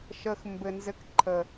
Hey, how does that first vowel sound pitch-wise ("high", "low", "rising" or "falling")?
low